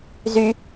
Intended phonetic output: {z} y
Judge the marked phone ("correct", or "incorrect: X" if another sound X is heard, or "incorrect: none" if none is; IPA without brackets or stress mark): correct